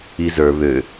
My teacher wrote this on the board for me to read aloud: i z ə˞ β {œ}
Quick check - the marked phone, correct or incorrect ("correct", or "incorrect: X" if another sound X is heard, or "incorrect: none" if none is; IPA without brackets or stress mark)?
incorrect: ø